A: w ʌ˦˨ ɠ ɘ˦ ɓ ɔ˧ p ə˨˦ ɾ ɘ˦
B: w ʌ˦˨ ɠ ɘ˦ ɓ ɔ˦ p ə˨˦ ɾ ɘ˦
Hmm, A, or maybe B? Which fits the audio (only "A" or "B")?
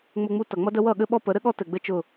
B